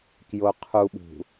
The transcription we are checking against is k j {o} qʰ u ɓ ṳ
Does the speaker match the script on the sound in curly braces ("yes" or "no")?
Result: yes